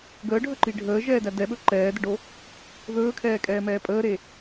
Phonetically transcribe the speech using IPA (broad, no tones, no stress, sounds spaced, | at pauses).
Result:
ɡ əː ɖʱ ɵ ǃ i ɖʱ əː ʒ ɛː d æ d ɛ ɓ ɵ ǃ ɛː d ə ɖ o | ð ɵː kʰ ɛː kʼ ɛː m ɛː pʼ əː ɾ e